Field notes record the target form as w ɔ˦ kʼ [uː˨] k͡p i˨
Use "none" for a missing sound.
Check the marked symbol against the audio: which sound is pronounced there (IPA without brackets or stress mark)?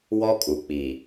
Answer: u˨